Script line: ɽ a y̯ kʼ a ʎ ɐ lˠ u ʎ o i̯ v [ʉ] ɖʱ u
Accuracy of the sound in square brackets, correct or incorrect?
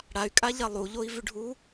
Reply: correct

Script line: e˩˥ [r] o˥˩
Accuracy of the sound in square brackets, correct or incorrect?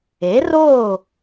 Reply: correct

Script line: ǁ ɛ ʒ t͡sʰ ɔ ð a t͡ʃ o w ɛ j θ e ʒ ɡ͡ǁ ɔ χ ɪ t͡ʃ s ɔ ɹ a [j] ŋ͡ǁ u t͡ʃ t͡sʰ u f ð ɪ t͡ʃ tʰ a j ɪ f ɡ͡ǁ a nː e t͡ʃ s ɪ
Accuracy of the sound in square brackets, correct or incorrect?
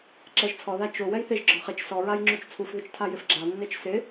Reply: correct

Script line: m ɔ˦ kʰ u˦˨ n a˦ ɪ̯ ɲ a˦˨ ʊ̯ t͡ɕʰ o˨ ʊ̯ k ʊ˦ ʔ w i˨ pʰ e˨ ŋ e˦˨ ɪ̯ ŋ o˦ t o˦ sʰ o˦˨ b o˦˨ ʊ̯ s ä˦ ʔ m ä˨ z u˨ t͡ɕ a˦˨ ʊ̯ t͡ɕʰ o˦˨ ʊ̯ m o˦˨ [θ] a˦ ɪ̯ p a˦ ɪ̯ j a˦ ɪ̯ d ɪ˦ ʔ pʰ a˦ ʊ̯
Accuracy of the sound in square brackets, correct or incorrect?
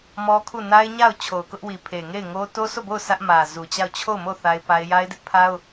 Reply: correct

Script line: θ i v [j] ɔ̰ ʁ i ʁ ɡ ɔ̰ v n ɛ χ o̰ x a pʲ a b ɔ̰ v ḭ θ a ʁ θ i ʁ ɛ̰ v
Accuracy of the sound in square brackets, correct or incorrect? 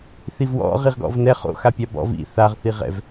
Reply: incorrect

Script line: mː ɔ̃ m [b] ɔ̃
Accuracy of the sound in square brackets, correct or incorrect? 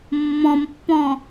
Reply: incorrect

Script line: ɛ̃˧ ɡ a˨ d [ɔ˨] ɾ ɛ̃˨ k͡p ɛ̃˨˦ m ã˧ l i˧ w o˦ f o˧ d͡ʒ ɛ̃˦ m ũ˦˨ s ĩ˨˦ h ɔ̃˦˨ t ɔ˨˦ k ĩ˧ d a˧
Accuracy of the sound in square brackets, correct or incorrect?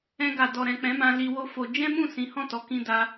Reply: correct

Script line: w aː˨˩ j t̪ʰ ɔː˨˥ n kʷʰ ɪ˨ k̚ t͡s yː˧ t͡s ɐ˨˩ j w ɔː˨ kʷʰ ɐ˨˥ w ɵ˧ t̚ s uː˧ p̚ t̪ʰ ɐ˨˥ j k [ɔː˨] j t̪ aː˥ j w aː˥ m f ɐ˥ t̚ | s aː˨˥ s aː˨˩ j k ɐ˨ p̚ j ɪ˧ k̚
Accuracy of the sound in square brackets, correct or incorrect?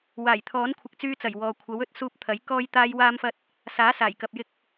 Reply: incorrect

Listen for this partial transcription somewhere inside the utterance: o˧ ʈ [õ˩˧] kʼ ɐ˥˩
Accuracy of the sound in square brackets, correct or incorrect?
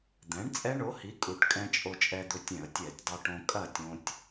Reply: incorrect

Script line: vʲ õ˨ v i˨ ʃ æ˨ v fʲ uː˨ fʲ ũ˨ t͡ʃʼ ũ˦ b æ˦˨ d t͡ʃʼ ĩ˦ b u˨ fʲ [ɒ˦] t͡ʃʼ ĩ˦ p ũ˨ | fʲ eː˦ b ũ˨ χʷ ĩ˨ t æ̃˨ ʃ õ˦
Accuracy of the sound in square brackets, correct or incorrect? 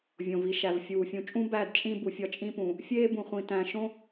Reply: correct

